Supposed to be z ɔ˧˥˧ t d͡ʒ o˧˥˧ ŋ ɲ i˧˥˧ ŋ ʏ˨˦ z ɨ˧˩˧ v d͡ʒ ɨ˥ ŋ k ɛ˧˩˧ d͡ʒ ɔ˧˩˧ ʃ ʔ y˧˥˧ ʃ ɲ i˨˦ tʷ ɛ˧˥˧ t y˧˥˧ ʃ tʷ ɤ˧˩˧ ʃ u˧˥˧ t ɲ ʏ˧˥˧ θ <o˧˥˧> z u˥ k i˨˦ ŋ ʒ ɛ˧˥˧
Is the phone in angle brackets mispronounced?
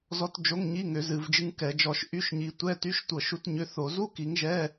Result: yes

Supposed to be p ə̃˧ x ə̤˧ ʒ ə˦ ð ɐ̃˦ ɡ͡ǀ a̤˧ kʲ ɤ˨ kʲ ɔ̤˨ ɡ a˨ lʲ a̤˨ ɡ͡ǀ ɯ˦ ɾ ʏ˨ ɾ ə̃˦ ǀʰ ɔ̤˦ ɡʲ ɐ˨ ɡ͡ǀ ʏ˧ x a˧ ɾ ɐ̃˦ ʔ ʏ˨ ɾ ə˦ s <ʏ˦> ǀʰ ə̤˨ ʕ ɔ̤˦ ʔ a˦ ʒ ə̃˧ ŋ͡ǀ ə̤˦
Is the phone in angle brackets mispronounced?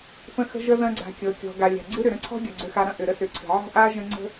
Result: yes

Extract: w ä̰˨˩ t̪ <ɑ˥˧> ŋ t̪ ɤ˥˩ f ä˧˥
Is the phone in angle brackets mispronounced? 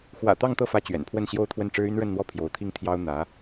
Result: no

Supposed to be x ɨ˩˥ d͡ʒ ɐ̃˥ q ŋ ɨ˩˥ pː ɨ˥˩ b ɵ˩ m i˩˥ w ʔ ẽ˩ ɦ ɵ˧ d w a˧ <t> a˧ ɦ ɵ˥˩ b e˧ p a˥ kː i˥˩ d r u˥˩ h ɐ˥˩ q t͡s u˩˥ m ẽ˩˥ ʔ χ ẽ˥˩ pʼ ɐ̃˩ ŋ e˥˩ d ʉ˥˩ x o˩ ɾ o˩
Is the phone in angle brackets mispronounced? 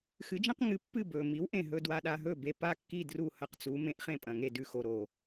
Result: yes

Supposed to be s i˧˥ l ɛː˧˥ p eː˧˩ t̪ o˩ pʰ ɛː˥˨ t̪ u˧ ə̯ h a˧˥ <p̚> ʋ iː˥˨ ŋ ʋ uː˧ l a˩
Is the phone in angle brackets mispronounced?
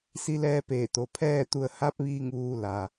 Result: no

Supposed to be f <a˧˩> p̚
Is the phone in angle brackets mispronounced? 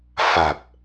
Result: no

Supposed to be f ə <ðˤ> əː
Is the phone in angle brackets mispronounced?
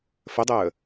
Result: yes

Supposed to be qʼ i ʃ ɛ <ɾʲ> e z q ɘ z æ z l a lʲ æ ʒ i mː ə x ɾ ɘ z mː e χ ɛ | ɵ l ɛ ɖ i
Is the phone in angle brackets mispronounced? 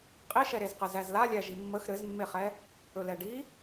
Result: yes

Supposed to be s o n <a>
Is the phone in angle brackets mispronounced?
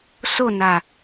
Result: no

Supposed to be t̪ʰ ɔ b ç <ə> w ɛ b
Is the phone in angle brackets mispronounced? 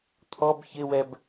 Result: yes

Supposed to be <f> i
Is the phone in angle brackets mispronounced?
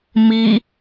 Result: yes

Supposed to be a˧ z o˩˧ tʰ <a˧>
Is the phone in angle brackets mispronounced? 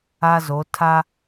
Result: no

